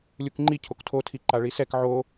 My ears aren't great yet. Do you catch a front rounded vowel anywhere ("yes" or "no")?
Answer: no